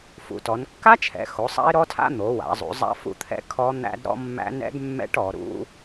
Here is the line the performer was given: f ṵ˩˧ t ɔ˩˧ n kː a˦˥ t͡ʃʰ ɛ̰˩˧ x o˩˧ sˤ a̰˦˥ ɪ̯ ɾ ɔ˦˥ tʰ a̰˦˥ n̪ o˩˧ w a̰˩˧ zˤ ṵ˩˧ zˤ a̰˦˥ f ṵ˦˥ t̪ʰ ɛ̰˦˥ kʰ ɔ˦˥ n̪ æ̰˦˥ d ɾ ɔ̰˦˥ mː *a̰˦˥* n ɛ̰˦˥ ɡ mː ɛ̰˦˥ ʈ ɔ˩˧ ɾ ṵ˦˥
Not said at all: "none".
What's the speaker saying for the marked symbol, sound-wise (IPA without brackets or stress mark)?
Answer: æ̰˦˥